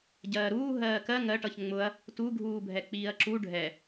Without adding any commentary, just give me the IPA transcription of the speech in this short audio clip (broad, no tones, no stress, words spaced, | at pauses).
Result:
ɟɜːɾuː ɦɜːkɜ ŋɜʈʌç ŋ͡mʊɐ̯ | tu ɡʱuːbʱɛk͡piːɐ̯ǁu ɖʱɛ